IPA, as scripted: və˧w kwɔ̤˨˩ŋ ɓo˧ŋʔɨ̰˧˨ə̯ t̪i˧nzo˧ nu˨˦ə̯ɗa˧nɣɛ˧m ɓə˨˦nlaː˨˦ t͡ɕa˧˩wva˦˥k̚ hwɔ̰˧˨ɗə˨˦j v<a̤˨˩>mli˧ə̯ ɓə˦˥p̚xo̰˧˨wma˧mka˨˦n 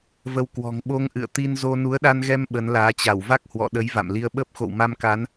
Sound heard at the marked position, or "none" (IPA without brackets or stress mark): a̰˧˨